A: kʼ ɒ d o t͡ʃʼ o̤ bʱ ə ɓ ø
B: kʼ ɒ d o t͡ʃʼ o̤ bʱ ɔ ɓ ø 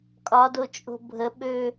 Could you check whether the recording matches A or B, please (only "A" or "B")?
A